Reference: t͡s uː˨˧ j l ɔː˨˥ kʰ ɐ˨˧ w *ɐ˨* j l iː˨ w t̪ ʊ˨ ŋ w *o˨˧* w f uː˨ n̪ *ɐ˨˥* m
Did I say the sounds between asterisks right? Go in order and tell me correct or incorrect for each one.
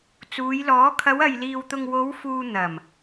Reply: correct, correct, incorrect: ɐ˨˩

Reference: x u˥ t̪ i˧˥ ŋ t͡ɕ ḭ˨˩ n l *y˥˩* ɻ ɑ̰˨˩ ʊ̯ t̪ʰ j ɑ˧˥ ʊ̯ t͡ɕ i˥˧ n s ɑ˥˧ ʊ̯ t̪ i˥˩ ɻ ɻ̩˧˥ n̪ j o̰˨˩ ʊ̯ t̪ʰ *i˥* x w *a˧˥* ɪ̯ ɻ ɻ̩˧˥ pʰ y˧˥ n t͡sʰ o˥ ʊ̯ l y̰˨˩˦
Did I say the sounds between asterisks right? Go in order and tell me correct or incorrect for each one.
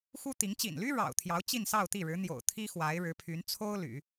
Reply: incorrect: y˥, correct, correct

